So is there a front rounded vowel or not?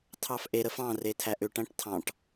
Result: yes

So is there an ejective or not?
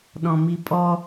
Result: yes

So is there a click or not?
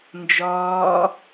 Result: no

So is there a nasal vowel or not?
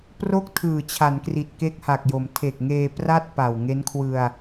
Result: no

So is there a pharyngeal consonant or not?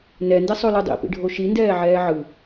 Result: yes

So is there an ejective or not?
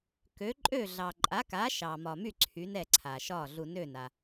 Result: yes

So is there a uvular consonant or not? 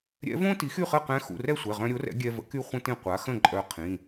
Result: yes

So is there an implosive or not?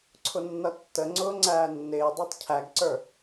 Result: no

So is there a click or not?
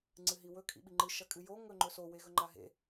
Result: yes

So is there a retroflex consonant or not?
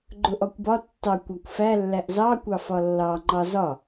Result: no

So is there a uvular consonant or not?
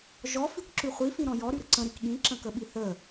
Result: yes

